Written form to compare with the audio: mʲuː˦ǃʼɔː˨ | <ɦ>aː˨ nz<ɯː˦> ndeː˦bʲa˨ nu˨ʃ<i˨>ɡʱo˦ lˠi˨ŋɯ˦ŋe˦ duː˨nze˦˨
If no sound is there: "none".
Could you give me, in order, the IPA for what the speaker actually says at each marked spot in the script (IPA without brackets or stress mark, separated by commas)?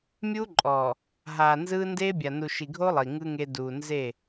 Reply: ɦ, ɯː˦, i˨